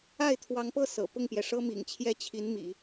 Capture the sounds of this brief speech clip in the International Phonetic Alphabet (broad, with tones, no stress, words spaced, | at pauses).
a˥˩ɪ̯t̪ʰwɑ˧˥ŋpɤ˥˩ sɤ̰˨˩ pʊ˥˩ŋpjɛ˩ʂɤ˥mḭ˨˩ŋ t͡ɕʰjɛ˥t͡ɕʰi˧˥nmḭ˨˩˦